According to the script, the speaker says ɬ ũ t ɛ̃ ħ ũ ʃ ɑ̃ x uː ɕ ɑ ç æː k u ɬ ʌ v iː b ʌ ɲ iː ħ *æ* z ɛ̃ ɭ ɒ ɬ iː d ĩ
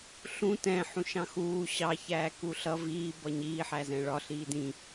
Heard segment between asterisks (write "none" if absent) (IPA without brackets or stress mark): æ